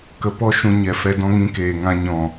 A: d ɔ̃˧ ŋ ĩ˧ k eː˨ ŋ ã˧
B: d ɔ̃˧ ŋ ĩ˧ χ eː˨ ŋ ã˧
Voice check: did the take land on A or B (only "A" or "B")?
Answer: A